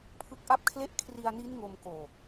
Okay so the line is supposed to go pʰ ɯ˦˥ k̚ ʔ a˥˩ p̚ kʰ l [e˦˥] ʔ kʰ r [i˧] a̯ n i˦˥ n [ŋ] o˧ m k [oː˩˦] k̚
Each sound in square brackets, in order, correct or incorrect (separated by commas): incorrect, correct, correct, incorrect